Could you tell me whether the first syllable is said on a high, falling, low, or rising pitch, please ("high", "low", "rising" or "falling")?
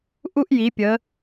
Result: high